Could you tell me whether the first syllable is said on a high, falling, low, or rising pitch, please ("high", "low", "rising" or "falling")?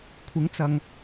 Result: rising